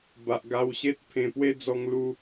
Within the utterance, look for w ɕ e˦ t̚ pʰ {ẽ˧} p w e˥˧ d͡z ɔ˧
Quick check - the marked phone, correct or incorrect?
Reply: correct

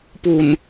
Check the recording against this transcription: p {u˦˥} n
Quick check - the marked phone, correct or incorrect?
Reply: incorrect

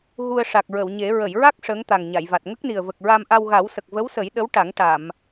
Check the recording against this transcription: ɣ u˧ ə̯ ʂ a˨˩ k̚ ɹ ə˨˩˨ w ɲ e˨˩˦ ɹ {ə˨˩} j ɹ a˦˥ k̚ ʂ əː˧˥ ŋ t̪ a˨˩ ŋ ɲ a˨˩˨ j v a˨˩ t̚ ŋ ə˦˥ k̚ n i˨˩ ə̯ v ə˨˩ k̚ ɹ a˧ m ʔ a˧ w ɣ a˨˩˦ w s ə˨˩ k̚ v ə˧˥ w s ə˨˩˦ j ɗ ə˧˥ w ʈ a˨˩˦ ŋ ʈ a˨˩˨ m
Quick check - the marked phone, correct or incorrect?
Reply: incorrect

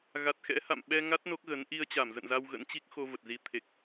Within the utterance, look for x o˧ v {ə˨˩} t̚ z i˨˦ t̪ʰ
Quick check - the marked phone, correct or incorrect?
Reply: correct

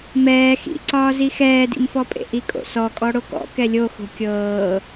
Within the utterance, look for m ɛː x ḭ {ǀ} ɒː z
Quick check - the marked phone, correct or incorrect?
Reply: correct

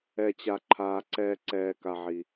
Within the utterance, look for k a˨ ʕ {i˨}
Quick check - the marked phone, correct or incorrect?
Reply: correct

